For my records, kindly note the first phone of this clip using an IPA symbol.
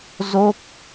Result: z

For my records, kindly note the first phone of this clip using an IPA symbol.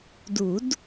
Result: d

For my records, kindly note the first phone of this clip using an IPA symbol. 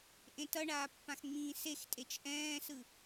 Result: ʔ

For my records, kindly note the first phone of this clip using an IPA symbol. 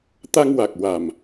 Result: t̪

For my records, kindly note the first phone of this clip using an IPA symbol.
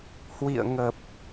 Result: h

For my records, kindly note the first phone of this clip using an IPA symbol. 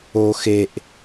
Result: o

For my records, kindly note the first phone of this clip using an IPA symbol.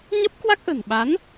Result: ɲ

